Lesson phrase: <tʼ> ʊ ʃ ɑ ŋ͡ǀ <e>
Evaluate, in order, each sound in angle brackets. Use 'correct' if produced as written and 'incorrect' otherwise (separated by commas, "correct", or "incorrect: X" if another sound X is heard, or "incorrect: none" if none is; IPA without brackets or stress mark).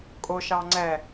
incorrect: kʼ, incorrect: ɛ